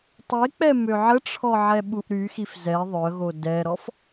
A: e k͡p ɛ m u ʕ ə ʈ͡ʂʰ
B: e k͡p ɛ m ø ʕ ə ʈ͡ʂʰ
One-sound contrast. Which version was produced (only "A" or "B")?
B